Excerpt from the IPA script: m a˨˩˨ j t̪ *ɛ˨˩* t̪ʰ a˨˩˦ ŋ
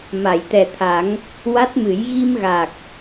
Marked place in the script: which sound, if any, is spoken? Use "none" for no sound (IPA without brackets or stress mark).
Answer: ɛ˨˩